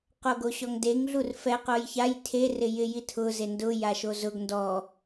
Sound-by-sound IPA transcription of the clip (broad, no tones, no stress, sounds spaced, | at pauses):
q o ɡ o ɕ ɔ ŋ d e ŋ ɮ u r f ɛ q o j ç a j tʰ e r ɪ j ɪ j i tʰ ʊ z e n d ʊ j a ʃ o z ʊ ɡ n d ɔ